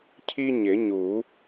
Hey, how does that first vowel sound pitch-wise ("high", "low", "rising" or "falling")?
high